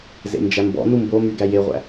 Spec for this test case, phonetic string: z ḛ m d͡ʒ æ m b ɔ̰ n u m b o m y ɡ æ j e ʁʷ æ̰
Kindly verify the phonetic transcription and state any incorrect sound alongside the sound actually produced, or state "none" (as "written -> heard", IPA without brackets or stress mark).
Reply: none